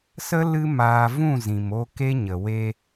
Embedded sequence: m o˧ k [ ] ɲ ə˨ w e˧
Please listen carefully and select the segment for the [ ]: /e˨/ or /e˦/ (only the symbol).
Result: e˦